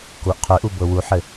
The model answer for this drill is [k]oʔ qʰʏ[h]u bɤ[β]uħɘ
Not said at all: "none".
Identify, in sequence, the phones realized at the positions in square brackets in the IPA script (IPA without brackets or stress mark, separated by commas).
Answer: k, ʔ, w